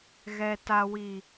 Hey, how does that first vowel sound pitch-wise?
high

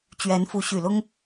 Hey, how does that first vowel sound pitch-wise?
rising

